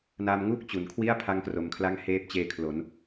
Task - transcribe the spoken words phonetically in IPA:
n a˧ m ŋ u˥˩ k̚ t͡ɕ u˩˦ n kʰ w i˥˩ a̯ pʰ a˦˥ ŋ k r o˨˩ m kʰ l a˦˥ ŋ h eː˦˥ p̚ t͡ɕ eː˧ kʰ l o˩˦ n

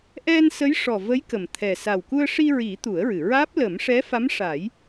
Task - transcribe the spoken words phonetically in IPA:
ʔ ɛ˧ n s ə˧˥ j ʂ ɔ˨˩ v ə˧˥ j k ə˨˩ m t̪ʰ ɛ˨˩ s a˨˩ w k u˧ ə̯ ʂ i˧ ɹ i˨˩˦ t̪ u˨˩˦ ə̯ ɹ ɨ˨˩˨ ɹ aː˦˥ p̚ l ə˨˩˦ m ʂ ɛ˧˥ f a˧˥ m ʂ a˨˩˦ j

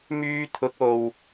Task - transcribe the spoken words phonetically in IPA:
m yː˧ t̪ʰ ʊ˨˥ k̚ o˨ w

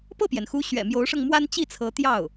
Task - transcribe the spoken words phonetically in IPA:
p ɤ˥˩ p j ɛ˩ n x u˧˥ ɕ ɥ ɛ̰˨˩ m j o˧˥ ʊ̯ ʂ ɤ˧ ŋ m w a˥ n t͡ɕ i˥˩ t͡sʰ ɤ˧˥ t̪ j ɑ˥˩ ʊ̯

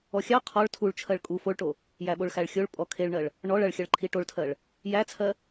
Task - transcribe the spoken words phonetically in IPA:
ɔ xʲ ɑ qʰ ɔ ɭ tʰ u ɭ t͡ʃʰ ɜ ɭ kʼ u f o ɭ ʈ o | j æ ɓ o ɭ x æ ɭ xʲ o ɭ pʼ ɔ kʰ e ɭ ɳ ɜ ɭ | ɳ ɔ ɭ ɐ ɭ xʲ ɐ ɭ ǃʰ i ʈ o ɭ tʰ ɜ ɭ | j æ t͡sʰ ɜ

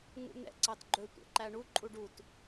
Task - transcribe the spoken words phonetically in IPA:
ŋ ṵ n̪ ɛ̰ ǀ ɑ t ɡ͡ǃ ɵ tʷ ɛ̰ ǃ æ ɳ u ǃʼ u ɖ u t

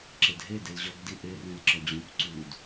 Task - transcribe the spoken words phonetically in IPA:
ǁ e d ɦ e d e l ʑ ɒ ɡ d i ʔ e r ẽ l ǁ ɒ d͡ʑ õ p ǀ u d

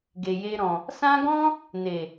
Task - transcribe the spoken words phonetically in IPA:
ɡ e˨ j e˧ ɾ ɔ̃˨ | s ã˦ ɡ ɔ̃˦ | n e˨

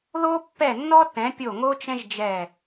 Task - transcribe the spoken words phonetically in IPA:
ð o˥ pː ɛ˦˨ nː ɔ˥ t ɛ̃˨˦ pʲ o˦˨ ŋ o˥ t͡ʃ ɛ̃˥ ʒ d͡ʒ ɛ˦˨

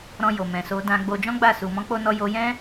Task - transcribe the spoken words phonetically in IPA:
ɾ ɔ̃˧ j o˨ m ɛ̃˨ s o˧ d ã˧ ɡ͡b o˧ d͡ʒ ɔ̃˦ ɡ͡b a˦˨ s u˨ m ɔ̃˧ k͡p o˧ n ɔ˧ j o˧ j ɛ̃˦

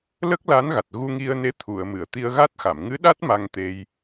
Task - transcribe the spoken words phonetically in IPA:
l ə˦˥ k̚ l a˧˥ n ɣ a˨˩ t̚ ɣ u˧ ŋ i˧ ə̯ n e˧˥ t̪ʰ u˨˩˨ ə̯ m ɨ˨˩˨ ə̯ t̪ i˧ ə̯ ɣ a˦˥ t̚ x a˨˩˨ m ŋ ɨ˧˥ ɗ a˦˥ t̚ m a˧ ŋ t̪ e˧ j

